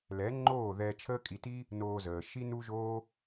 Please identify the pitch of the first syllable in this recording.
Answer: rising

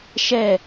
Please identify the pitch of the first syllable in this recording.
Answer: falling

